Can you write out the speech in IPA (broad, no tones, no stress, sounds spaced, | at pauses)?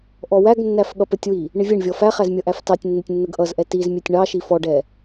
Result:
ʔ ɔ w æ ɡ nː æ f ɠ ʌ p ə tʲ w i | ɳ ɪ vʲ ɛ ɳ vʲ ɔ f æ χ æ z mʲ ʌ ʔ æ f t ɑ tʲ nː ɪ tʲ nː ə ɡ ʔ ʌ z ʔ ɛ t i z mʲ ɛ tʲ ɳ ɑ ʃ i f ɔ ɖ ɛ